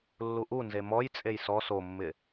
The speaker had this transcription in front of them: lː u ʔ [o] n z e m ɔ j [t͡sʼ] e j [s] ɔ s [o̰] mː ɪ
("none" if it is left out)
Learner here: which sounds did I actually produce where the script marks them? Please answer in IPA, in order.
u, t͡sʼ, s, o

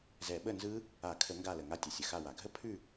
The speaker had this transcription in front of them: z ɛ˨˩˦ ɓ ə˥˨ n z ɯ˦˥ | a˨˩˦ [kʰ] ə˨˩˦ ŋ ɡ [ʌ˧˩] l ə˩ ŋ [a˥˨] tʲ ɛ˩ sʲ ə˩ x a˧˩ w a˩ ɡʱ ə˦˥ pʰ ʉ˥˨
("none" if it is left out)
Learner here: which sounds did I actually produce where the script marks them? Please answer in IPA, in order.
kʰ, a˧˩, a˧˩

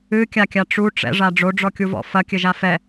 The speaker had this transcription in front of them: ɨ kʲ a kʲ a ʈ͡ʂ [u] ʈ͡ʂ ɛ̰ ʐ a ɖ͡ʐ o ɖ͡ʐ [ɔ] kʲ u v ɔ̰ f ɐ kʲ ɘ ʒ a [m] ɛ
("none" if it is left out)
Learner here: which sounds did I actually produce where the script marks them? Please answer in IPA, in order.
u, ɔ, f

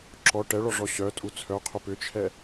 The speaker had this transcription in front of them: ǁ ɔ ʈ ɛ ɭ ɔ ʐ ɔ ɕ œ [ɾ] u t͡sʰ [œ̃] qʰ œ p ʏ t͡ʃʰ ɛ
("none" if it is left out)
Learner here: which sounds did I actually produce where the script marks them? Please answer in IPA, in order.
tʼ, œ

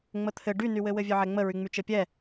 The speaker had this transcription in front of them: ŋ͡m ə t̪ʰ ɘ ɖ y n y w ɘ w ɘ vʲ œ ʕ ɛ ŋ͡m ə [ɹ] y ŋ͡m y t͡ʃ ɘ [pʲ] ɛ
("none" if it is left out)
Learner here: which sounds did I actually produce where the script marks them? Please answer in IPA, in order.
ɹ, pʲ

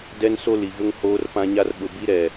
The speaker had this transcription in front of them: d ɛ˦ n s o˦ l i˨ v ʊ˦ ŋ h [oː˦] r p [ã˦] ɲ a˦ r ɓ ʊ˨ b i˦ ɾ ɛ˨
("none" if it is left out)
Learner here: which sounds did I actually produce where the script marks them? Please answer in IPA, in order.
oː˦, ã˦

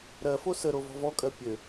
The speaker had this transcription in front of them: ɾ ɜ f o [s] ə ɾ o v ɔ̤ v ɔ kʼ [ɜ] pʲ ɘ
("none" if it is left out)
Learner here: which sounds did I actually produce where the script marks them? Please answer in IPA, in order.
s, ɜ

